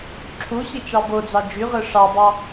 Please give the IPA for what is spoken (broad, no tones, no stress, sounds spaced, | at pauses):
ǁʰ u ɕ i t͡ʃ ɑ b o d͡z ɑ d͡ʒ y ʁ ɯ ʂ ɑ b ɑ